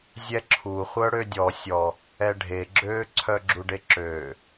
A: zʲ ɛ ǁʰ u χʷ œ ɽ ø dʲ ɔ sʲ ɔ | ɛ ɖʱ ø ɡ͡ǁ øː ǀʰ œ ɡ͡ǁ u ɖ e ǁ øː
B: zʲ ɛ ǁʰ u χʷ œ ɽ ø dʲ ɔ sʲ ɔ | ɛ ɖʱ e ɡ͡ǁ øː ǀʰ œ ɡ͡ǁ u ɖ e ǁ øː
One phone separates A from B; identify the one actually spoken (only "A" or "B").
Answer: B